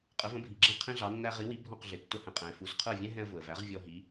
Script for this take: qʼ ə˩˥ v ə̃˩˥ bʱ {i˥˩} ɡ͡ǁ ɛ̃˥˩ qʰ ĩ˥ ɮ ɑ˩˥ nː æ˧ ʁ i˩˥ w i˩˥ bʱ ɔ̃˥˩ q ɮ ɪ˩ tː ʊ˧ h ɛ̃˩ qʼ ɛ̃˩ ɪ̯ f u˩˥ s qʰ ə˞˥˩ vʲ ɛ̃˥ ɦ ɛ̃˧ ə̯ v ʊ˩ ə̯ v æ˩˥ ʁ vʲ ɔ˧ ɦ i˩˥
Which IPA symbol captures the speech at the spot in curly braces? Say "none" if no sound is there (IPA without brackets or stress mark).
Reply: i˩